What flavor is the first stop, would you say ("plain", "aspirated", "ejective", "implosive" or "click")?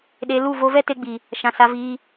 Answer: implosive